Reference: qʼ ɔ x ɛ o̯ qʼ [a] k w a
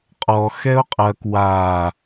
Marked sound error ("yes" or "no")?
yes